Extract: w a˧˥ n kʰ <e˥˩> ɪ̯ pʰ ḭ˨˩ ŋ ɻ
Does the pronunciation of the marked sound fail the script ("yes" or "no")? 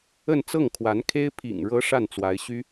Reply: yes